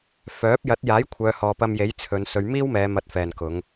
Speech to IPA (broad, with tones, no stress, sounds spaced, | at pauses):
f œː˨˥ p̚ j ɐ˨˥ t̚ j aː˨˥ j kʷʰ œː˨˧ h ɔː˨ p ɐ˧ m j e˨˥ j t͡sʰ ɵ˨˧ n s ɵ˨˧ ɥ m iː˥ w m ɛː˨˧ m ɐ˨˥ t̚ f ɛː˨ n k ʊ˨˧ ŋ